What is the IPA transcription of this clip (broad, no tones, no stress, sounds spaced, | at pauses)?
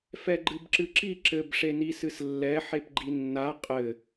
f ɛ ɡ͡ǃ ɨ b ǁ ɨ ǁ i ǁ ɘ b ʂ e n i s ɨ s lː ɛ ħ e p ɡ͡ǃ i nː a qʼ ɘ